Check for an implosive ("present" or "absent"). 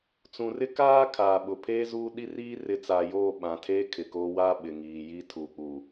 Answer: present